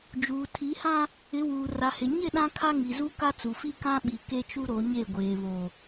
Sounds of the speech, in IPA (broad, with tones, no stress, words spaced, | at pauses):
d͡ʒuː˨tʰi˨˦hã˦ | ɪ˨˦wuː˨ra˨hɪ˨ ɲɪ˦˨ ɗã˦kʰa˦ ŋi˨zu˦ ka˦t͡su˨fi˦kã˦ ɓi˨ ke˦t͡ʃu˦ ɾo˨˦ɲe˦˨ɡʷeː˨ βo˨